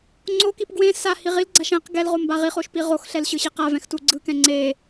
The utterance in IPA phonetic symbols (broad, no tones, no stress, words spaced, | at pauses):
ŋ͡ǀokip ɡwẽ sa hiʁilɡ͡ǀaʃ ɛ̃q ɡɛlʁo mbaʁiχoʃ piʁoxɬɛl ɕɯɕiqavɛ̃x tuɡ͡ǀɯkɛ̃ ŋ͡ǀe